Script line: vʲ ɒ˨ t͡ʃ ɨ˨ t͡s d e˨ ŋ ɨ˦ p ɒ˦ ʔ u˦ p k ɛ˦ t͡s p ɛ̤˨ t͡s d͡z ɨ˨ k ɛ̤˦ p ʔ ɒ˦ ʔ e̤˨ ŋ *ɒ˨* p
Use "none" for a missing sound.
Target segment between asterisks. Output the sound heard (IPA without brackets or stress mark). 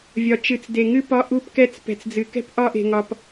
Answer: ɒ˨